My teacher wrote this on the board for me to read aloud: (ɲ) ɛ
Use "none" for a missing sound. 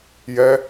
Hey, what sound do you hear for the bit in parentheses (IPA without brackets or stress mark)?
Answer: j